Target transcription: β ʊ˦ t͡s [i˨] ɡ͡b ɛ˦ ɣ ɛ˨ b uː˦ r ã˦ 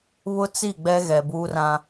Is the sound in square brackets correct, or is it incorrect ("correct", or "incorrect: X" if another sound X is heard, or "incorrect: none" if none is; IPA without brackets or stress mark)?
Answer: incorrect: i˦˨